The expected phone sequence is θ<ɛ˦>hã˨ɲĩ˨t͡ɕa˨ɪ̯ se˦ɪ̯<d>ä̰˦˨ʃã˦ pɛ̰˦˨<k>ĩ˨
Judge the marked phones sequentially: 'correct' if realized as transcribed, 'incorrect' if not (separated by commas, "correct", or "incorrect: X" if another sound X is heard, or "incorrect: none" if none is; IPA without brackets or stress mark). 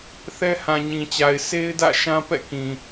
correct, correct, correct